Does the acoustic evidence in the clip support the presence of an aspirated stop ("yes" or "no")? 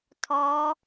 yes